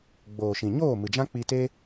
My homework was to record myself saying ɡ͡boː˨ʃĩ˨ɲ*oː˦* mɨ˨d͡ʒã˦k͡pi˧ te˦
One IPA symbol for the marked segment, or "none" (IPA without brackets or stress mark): oː˦˨